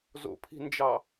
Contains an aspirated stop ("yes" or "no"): yes